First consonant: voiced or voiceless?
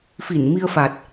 voiceless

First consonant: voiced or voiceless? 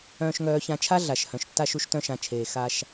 voiceless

